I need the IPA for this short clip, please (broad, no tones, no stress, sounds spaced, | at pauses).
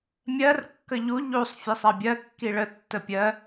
mʲ ɜ r kː ə ʎ u ʎ u sˤ fʲ e sˤ ɜ bʲ ɜ kː i ɭ ə tː ə pʲ ɜ